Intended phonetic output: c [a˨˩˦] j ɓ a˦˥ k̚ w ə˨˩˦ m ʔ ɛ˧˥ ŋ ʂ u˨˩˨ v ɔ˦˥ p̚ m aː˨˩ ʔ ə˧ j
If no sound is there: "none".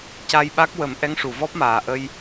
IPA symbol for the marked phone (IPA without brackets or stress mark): a˧